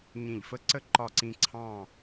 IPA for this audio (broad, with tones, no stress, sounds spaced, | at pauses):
ɲ ĩ˧˩ ʎ f ə˥ ǀ ə˥ ǃ ɒ˥˧ ǀ ĩ˥ ǀʰ ɑ̃˥˧